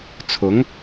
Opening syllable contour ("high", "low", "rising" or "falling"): rising